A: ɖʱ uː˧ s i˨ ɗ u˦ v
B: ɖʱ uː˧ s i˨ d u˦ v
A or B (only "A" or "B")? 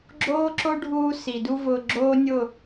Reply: B